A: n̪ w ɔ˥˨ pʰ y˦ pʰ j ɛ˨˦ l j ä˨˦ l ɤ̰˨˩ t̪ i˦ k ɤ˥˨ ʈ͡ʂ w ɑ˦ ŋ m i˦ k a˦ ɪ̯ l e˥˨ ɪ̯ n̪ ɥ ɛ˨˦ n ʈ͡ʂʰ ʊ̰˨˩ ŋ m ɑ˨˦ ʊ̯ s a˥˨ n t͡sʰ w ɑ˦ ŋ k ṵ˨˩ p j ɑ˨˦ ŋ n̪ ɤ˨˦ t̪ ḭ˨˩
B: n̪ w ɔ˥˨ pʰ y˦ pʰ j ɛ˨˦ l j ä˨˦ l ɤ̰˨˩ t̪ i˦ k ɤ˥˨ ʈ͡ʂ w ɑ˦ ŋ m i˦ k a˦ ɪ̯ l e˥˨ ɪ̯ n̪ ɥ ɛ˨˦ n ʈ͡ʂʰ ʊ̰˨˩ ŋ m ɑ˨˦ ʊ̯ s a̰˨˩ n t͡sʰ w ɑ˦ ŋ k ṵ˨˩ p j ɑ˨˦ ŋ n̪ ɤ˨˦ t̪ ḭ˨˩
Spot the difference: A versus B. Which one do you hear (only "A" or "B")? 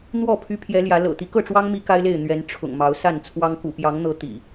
A